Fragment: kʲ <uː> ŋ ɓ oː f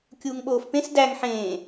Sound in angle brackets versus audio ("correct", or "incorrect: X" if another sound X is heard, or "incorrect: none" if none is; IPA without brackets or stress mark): correct